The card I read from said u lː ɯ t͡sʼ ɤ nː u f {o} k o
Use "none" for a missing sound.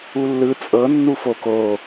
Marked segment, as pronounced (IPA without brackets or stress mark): o